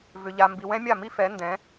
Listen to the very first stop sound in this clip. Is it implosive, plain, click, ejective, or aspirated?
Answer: plain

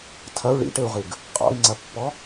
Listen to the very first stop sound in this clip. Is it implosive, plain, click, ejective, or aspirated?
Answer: aspirated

